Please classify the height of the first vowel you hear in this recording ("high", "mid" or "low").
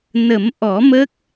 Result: mid